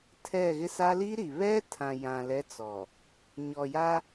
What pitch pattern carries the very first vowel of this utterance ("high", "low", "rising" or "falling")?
falling